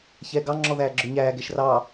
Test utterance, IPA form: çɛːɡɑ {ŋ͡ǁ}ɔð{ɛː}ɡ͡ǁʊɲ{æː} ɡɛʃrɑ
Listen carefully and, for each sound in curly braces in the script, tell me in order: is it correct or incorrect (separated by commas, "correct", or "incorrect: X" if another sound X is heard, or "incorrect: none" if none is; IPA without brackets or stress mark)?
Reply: correct, incorrect: æː, correct